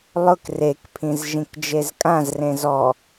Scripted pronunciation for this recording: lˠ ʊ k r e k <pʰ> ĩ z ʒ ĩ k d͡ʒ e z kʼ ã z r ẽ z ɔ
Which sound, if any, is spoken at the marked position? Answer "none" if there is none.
pʰ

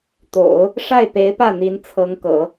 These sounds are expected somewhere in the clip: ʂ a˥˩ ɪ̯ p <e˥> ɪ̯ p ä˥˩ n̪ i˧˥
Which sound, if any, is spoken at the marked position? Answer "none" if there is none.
e˧˥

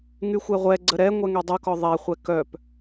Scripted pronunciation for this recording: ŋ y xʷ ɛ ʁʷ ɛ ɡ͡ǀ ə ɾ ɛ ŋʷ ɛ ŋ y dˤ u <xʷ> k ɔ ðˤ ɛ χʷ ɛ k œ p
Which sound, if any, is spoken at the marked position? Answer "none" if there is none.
none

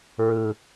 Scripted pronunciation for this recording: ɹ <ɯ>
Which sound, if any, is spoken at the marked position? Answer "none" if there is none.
ɯ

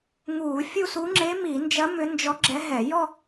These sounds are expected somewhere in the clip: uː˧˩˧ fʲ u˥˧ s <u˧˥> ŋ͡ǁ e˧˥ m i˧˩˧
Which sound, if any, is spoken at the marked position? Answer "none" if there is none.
u˧˥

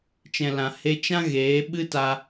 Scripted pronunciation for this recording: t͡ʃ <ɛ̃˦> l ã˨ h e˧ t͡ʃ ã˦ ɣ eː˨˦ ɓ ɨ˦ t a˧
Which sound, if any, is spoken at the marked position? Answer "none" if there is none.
ɛ̃˨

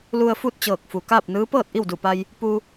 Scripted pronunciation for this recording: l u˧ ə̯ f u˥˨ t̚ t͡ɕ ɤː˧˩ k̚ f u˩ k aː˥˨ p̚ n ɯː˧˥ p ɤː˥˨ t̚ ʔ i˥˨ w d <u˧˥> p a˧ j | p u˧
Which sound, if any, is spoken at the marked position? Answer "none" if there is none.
u˧˩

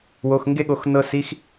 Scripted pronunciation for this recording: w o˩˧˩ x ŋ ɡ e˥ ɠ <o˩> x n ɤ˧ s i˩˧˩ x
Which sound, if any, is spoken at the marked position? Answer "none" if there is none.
o˩˥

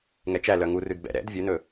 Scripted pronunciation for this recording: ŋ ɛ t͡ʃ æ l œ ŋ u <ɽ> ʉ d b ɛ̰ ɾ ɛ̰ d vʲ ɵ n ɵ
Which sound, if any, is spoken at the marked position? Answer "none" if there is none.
r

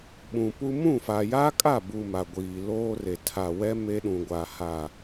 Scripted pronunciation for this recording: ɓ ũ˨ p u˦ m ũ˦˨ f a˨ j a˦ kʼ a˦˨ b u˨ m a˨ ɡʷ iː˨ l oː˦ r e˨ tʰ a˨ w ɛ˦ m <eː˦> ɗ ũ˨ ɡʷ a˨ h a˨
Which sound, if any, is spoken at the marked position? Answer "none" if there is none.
e˦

